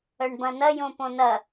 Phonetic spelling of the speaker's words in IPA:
œ ɳ b ɐ̃ n ɐ j õ p õ n ɐ

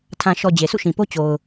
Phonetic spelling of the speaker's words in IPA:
tʰ ã˨ ʃ ɔ˨ d͡ʑ e˨ s ṵ˦˨ ʃ ĩ˨ p o˦ t͡ɕ o˨ ʊ̯

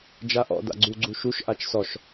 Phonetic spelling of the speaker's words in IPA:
d͡ʒ a ʔ ɔ̰ d a̰ ɡ͡ǀ u ɡ͡ǀ u ʃ u ʃ ʔ a t͡ʃ s ɔ ʃ

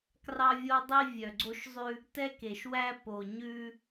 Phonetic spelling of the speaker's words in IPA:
k r ɑ˦ vʲ o˦ dˤ i˦ vʲ œ˨ ɡ͡ǀ o˦ ʃ zˤ ʉ˦ | t ɛ˦ k e˨ ʃ w æ˦ p o˨ ɲ ʉ˦

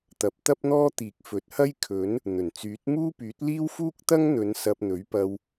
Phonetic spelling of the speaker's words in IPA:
t̪ ɐ˨˥ p̚ t̪ ɐ˥ p̚ n̪ ɔː˥ t̪ iː˨ k̚ f ɵ˨ t̚ h ɐ˥ j kʰ ɵ˨˥ n | n̪ ɵ˨˩ n t͡s yː˨˥ t̚ m uː˥ p yː˨˥ t̚ l iː˥ w f uː˥ k̚ t̪ ɐ˥ ŋ n̪ ɵ˨˧ n s ɐ˧ p̚ n̪ ɵ˨˥ ɥ p ɐ˧ w

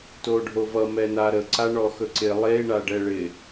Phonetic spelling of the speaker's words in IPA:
t o ɖʱ o v ʌ m ɛ n a ɾ ə ǀ a ɳ ɔ x ɵ ǀ ɪ lˠ e ɳ a ɖ ɛ ɭ ɪ

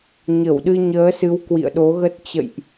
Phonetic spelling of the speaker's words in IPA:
ɲ ə˧˩ w ɗ ɨ˧ ɲ əː˨˦ s ɨ˨˦ w k w ḭ˧˨ ə̯ ɗ o˨˦ ɣ ə˦˥ t̚ t͡ɕ ə̰˧˨ j ʔ

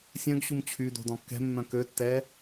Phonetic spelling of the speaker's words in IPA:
sʲ œ̃ ɡ ɕ u m t͡ɕʰ y d o̤ d ɔ̃ kː ɛ̤ mː œ̃ k ø tː ɛ

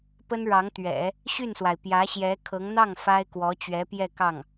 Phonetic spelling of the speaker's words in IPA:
p ə˥ n ɻ ɑ˧˥ ŋ t̪ ɥ ɛ̰˨˩˦ | ɕ y˥˩ n s w a˩ ɪ̯ p j ä˧˥ ɕ j ɛ˧˥ kʰ ɤ˧˥ ŋ n̪ ɑ˥˩ ŋ f a˥ ɪ̯ k w ɔ˧˥ t͡ɕ ɥ ɛ˧˥ p j ɛ˥˧ k ɑ˥˩ ŋ

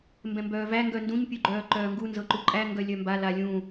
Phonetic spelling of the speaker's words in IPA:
m b ɛ̃ m b œː v æ ŋ ɡ œ n d ũ ɲ pʲ u ɡ͡ǃ œː ǃ œː ŋ ɡ u n z ɤ ǃ u ǃʼ æ ŋ ɡ œ lʲ œ m b a l a lʲ ũ

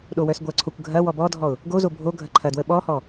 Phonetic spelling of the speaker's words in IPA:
ɗ o w œ s ɡʷ ɐ ǀʰ o kʷ ɡʱ ɐ w ɔ b ɔ dʱ ɔ ʊ̯ | ɡ o z o bʱ o ɡʱ ɐ ǃʰ ɐ d w ə ɓ ɔ h ɔ

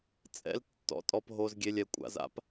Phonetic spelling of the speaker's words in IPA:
t͡sʼ ɛ̰˥˧ l tː ɔ̰˧˥˧ tʼ ɔ˥˧ p ɦ o˧˥˧ z ɡʲ e˧˥˧ lʲ ɛ˧ kʷʼ a̰˩˥ z a̰˧˥ p

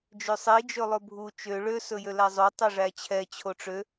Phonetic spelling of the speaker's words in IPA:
d͡ʒ ø sˤ i d͡ʒ ɵ lˠ ɵ bʱ u t͡ʃ ø ɭ ø s ɵ j ø l æ zˤ o tˤ e ʐ æ t͡ɕʰ ɛ t͡ɕʰ o ʈ͡ʂ ø

